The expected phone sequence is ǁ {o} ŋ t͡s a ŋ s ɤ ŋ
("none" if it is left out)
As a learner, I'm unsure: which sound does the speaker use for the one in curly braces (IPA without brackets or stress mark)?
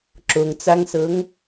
o